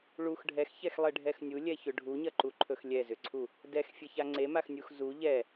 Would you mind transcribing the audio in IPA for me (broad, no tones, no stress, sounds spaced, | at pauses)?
ɭ u x ɖʱ ɛ x ç ɛ x lˠ e ɖʱ ɛ x nʲ u lʲ ɛ ç ʏ ɖʱ u ɲ ɐ ǃ u ǃʰ ɵ x lʲ ɛ z ʏ ǀʰ u | d ɛ x fʲ e ç a ŋ͡ǀ e m a x nʲ u x z u ʎ ɛ